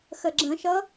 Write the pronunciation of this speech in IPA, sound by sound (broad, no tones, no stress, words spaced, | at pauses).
xəɡ͡ǁə̃ʃʌ